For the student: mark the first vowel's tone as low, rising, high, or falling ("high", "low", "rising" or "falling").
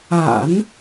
low